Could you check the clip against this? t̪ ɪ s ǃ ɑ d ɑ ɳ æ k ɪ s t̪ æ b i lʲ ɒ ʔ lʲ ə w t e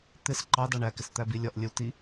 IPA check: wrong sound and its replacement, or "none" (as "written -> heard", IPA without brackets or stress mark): e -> i